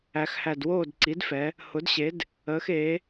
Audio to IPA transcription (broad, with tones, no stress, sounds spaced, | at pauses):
æ˩˧ x h æ˨˩ d w oː˥˨ d ǀ i˩˥ d f ɛ˩˧ | h ʊ˩˥ d ɕ e˩˥ d | əː˩˧ x eː˩˧